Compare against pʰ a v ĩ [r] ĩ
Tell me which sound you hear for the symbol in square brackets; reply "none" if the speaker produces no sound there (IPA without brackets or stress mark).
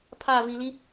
l